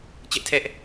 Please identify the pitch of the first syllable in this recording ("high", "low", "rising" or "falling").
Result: high